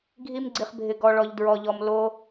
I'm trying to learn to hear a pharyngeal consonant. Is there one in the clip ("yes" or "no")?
no